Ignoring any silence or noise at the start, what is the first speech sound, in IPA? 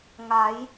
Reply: ŋ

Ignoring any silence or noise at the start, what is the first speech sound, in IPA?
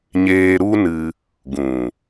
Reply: ɲ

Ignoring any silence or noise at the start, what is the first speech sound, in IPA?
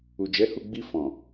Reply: u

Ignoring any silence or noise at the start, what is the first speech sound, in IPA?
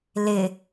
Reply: l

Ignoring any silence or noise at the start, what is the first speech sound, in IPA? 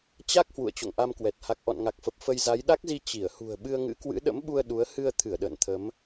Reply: t͡ɕ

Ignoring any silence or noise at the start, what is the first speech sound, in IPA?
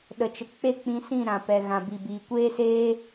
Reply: ɗ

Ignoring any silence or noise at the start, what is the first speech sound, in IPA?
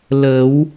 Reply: l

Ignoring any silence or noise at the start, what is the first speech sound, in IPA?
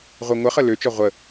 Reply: ʁʷ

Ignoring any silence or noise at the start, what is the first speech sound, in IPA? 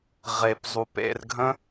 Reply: ʁ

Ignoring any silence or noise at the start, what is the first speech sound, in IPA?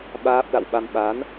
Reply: ɓ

